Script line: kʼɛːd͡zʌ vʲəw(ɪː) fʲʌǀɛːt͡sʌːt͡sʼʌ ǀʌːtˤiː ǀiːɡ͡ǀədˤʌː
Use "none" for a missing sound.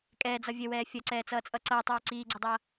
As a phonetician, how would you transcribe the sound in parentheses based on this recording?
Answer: ɛː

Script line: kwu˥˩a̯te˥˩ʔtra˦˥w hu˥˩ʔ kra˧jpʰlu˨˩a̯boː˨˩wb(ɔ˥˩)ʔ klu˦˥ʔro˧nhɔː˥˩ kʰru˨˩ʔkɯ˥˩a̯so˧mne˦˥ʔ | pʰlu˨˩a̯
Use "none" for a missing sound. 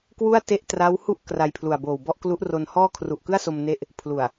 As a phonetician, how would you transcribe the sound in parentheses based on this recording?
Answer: ɔ˥˩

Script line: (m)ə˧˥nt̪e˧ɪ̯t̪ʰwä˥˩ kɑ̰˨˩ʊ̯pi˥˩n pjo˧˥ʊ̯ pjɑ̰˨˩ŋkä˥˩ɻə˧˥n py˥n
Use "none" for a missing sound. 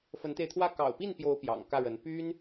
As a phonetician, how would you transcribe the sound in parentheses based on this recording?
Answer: f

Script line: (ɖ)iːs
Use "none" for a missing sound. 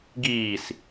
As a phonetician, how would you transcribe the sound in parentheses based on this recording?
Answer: ɡ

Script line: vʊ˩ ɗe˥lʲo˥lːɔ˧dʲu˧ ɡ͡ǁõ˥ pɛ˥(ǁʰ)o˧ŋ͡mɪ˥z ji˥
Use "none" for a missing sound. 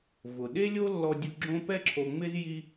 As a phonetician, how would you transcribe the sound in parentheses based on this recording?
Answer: ǁʰ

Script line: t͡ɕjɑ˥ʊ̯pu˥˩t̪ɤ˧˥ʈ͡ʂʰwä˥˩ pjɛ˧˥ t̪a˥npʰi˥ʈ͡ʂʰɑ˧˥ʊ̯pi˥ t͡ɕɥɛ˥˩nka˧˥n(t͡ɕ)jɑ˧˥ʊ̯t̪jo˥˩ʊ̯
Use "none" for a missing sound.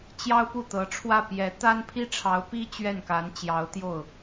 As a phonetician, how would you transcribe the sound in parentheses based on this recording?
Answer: t͡ɕ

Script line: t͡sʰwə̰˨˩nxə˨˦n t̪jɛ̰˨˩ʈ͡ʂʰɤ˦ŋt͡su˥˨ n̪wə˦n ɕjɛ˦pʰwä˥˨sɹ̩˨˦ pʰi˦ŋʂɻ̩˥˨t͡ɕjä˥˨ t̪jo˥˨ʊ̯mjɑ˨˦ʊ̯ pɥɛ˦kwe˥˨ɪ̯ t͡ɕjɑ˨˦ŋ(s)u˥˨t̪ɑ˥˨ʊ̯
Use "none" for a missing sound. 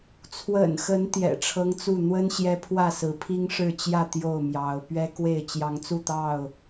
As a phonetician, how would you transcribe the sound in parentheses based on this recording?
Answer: t͡s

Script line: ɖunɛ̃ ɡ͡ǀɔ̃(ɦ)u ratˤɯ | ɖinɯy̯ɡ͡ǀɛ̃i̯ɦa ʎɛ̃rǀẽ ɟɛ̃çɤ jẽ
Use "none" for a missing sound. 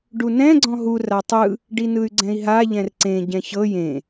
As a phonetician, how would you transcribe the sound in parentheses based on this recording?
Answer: ɦ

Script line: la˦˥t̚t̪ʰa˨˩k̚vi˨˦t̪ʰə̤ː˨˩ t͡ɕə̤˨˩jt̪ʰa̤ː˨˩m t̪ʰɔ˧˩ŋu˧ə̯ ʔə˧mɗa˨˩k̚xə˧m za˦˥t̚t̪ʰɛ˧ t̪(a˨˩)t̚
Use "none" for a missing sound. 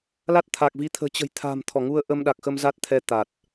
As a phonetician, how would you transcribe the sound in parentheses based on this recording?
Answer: a˨˩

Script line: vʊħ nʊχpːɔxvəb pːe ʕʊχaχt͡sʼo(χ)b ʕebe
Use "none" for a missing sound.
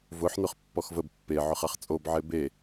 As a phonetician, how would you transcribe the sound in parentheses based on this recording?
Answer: none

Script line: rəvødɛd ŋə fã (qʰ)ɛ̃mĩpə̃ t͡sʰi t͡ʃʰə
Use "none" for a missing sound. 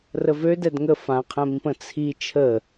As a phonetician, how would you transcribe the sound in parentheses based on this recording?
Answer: qʰ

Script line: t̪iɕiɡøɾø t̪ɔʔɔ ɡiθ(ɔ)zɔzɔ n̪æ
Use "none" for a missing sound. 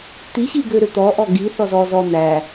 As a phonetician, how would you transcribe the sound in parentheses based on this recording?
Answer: ɔ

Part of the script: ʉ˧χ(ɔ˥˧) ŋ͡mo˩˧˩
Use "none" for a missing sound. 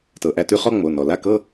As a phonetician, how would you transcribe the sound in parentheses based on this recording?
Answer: ɔ˥˧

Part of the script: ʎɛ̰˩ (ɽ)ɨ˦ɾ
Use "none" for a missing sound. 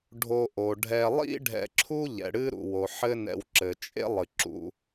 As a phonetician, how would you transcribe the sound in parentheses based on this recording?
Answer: ɽ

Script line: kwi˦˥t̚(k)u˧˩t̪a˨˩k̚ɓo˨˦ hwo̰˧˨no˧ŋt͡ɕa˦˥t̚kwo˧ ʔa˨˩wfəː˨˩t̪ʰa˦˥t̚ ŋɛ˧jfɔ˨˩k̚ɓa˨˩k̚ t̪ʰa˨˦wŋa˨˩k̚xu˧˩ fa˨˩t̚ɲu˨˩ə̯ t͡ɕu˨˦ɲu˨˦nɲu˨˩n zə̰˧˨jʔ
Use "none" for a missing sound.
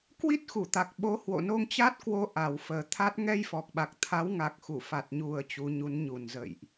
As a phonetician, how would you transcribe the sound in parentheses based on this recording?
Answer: x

